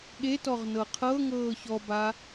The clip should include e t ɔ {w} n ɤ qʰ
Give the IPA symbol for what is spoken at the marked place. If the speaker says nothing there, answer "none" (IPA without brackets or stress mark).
ʁ